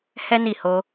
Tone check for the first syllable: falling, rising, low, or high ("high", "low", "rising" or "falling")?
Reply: high